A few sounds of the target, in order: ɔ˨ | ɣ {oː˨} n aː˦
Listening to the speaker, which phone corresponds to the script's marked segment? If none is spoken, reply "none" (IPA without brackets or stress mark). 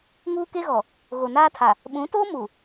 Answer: o˨